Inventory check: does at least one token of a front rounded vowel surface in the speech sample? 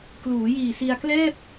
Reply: no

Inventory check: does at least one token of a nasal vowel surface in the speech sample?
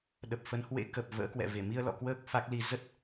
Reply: no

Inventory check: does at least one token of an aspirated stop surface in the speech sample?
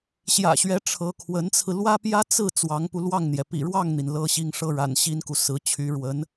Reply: yes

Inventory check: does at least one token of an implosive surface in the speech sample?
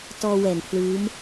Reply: no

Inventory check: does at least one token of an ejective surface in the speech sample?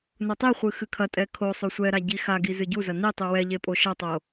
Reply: yes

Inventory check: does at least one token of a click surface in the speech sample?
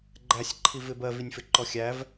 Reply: yes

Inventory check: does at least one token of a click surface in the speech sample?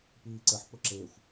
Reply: yes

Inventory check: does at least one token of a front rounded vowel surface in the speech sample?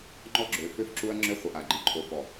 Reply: yes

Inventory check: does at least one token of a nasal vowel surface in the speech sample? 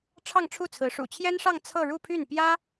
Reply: no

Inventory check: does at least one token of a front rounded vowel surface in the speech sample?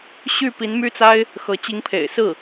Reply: yes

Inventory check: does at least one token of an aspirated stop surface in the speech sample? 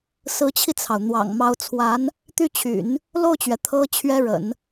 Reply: yes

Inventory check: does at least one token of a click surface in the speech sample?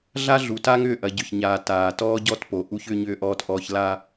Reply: no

